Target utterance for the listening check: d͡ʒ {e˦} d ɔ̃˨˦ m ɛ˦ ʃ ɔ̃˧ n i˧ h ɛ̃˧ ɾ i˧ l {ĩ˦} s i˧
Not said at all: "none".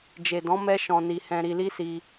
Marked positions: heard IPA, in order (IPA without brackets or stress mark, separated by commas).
e˨, i˦